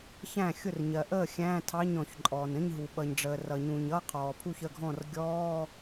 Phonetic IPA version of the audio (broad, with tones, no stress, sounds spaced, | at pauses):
ç æ̃˥˩ xʲ ʊ˥˩ r ɲ ɜ˩ ʔ əː˥˩ xʲ æ̃ː˧˥˧ tʰ ɑ˧˥˧ ɲ ɔ̃˩ ç ǃʼ ɔː˩ n ə̃˧˥˧ ɲ ɦ u˩ ɓ ʌ˩ ɲ ɖ͡ʐ əː˩ r ʌ˩ ɲ ũ˩ ɲ ʌ˧˥˧ qʰ ɔː˩ pʰ u˥˩ ç ə˥˩ ɡʱ ɔ̃˥˩ r ɡʲ ɔː˧˥˧